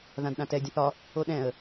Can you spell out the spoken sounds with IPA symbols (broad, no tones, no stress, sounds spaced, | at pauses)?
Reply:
ð ã d ɗ ã t ɛ dʲ ə̃ θ ɒ | o ɗ ɛ̃ ə̯